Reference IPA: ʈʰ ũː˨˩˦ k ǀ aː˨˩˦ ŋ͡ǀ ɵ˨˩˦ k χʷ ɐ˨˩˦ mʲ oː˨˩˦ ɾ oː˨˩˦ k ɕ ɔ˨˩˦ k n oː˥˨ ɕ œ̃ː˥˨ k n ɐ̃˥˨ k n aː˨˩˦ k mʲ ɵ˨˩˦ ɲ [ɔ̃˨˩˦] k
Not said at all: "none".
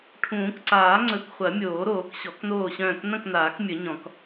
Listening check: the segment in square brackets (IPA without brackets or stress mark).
ɔ̃˨˩˦